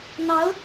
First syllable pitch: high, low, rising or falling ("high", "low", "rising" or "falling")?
rising